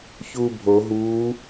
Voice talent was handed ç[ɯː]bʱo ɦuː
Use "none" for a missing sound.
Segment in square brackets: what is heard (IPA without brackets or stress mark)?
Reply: uː